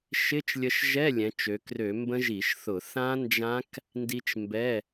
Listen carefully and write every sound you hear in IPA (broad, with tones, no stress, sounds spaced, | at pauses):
ʃ ɪ˧˥˧ t͡ʃ lʲ ə˧ ʃ ʒ ɛ˧˥˧ lʲ ɛ̃˩˧ t͡ʃ ø˩˧ k r ø˧˩˧ m b ə̃˦˥ ʒ i˧˩˧ ʃ θ ʊ˧˩˧ θ ã˦˥ n d͡ʒ ã˦˥ k | n d i˧ t͡ʃ m b ɛ˧˥˧